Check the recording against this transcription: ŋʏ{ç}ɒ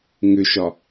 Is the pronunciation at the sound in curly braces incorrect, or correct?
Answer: incorrect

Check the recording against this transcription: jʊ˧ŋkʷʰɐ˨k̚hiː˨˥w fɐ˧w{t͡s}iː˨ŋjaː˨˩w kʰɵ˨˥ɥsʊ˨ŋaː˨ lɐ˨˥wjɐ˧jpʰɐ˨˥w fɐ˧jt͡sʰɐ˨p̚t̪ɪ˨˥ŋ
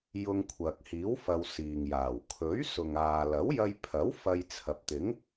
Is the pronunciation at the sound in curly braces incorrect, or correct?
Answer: incorrect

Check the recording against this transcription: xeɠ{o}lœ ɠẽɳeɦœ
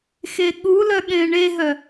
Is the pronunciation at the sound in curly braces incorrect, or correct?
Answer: incorrect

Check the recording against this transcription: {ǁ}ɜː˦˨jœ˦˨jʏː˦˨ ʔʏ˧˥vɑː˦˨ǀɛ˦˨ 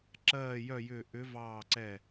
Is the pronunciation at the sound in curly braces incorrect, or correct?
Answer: correct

